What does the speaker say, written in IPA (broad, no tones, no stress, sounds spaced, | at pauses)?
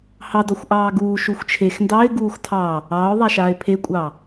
h ɑ d ɔ xʷ ʔ ɑː ɡ uː ʃ u xʷ t͡ʃʰ e x n d ɑ ɪ̯ ɡ uː x tʰ ɑ | ɑː ʊ̯ ðˤ a ʃ aː ɪ̯ pʰ e kʷʼ ɑ